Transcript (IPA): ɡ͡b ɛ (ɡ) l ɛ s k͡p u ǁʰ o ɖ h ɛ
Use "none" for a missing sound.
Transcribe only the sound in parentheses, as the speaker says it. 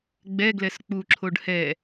ɡ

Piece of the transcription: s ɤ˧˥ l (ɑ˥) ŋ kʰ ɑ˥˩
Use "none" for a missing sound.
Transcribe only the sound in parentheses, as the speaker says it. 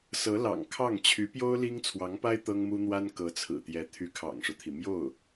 ɑ̰˨˩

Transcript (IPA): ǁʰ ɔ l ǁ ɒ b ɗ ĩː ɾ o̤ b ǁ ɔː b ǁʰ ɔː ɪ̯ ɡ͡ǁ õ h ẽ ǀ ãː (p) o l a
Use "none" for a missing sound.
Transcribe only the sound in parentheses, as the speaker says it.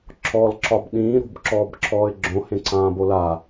b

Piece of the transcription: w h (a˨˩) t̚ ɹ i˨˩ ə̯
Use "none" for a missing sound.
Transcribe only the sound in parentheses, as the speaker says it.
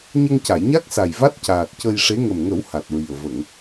a˨˩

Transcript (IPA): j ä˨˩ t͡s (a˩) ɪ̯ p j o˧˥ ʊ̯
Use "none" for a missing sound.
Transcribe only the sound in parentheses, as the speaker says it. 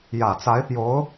a˧˥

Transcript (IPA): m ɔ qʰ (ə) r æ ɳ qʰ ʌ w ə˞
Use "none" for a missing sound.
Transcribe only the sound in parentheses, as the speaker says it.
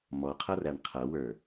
ʌ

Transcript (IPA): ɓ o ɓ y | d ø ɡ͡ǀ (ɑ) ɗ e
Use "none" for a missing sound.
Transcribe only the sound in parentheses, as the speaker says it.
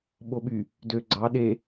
ɑ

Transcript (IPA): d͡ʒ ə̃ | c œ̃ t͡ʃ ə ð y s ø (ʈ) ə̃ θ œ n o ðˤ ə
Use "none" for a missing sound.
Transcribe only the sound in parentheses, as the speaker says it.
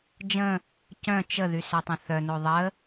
tˤ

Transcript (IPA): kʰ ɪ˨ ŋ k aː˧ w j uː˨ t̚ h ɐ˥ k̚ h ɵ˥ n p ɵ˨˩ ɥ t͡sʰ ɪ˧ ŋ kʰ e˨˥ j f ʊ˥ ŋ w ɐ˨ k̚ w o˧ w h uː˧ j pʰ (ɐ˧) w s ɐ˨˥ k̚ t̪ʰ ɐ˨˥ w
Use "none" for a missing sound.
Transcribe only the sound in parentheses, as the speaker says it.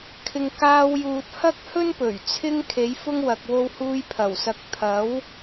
ɐ˨˩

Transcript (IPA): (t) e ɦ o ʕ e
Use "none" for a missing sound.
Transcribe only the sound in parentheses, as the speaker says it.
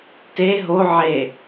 t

